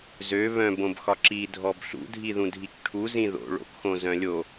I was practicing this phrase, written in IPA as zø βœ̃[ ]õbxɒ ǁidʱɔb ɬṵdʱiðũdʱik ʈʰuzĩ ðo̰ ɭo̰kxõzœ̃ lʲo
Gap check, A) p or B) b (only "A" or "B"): B